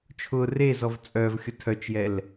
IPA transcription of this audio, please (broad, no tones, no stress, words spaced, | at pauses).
t͡ʃʰʊ rezɔv t͡sʼœvxʲʊ tʰœt͡ʃjɛl